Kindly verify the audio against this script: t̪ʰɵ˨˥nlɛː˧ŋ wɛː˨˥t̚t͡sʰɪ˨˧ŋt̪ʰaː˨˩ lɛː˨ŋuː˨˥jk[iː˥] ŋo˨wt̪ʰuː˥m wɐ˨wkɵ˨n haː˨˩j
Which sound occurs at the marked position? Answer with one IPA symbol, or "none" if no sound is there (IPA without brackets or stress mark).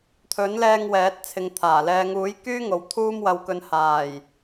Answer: yː˥